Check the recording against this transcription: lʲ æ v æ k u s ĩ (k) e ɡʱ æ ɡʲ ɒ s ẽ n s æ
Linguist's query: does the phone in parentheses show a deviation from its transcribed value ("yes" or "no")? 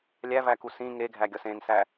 yes